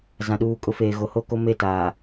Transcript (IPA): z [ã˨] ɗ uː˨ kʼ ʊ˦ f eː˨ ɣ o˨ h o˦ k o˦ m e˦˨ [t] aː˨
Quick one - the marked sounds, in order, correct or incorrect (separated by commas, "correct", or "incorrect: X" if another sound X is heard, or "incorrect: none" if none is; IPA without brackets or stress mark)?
correct, correct